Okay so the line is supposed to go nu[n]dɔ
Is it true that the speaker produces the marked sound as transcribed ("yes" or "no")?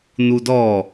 no